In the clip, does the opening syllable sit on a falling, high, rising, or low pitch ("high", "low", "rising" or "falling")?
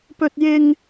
high